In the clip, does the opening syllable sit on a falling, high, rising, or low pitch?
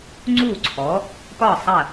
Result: falling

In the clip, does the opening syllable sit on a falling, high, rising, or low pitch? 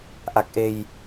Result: low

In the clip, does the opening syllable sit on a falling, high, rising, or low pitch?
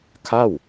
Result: falling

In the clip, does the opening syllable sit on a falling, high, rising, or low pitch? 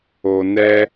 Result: low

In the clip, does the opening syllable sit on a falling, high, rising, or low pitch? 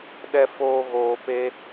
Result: high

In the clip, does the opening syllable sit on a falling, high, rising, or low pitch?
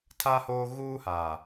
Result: high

